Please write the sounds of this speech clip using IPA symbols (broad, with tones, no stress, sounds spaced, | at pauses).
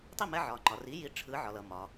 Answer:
tˤ i˥˩ m ɛ˧ ʕ ɒ˩ ŋ͡ǃ ɒ˩ r i˩˥ j i˩˥ ʈ͡ʂʰ ɯ˩˥ ʕ ɒ˩ l ʌ˩ m ɒ˩